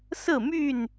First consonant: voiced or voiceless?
voiceless